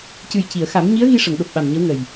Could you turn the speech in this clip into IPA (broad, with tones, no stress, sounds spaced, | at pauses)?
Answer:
c ɨ˨˩ j c i˨˩˨ ə̯ x a˨˩˦ m ɲ i˧˥ ə̯ ɣ i˧ ʂ ə˨˩˨ ŋ ɗ o˨˩ p̚ ɓ a˨˩ m ɲ ə˧˥ w ŋ ə˨˩ j